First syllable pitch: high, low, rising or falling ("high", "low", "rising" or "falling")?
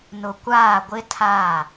low